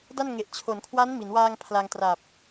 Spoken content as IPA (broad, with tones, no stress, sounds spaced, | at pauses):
d a˥˩ n ŋ e˨˩ ʔ t͡ɕʰ o˩˦ n kʰ w a˦˥ n m i˩˦ n w aː˧ ŋ pʰ l a˧ ŋ t r a˨˩ p̚